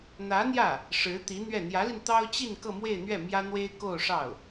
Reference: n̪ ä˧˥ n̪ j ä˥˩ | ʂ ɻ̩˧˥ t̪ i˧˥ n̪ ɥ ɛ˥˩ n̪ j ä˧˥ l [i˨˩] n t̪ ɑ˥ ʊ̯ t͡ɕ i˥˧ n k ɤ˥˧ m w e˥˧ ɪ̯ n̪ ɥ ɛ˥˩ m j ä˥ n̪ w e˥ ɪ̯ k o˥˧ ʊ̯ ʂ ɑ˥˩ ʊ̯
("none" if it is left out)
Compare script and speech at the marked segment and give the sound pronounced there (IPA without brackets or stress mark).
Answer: i˧